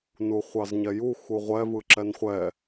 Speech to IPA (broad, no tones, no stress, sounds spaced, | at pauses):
n u χʷ ɑ z ɲ ɛ j u x u ʁʷ ɛ v ɯ ǁ ɛ n χʷ ɛ